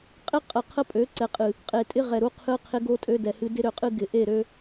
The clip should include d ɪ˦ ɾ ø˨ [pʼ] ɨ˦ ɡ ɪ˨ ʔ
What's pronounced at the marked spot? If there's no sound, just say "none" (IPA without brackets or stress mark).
qʼ